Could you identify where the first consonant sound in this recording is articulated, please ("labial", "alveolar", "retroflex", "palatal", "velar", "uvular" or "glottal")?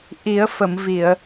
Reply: glottal